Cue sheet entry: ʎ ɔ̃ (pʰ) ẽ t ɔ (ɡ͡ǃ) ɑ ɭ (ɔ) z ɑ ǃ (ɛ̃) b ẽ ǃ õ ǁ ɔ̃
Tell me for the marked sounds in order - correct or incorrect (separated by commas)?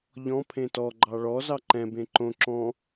correct, correct, correct, correct